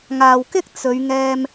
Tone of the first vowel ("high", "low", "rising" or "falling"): low